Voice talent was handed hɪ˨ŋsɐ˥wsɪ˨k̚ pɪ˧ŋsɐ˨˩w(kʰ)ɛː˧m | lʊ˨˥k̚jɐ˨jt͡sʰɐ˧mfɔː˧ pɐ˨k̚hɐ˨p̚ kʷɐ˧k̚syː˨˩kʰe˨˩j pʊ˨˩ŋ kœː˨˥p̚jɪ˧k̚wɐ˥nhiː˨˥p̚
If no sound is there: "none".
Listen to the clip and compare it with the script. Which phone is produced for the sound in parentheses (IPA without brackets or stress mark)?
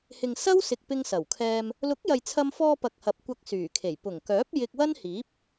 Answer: kʰ